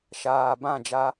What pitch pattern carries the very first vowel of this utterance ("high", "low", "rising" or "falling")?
low